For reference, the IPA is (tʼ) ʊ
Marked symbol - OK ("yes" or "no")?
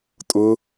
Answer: yes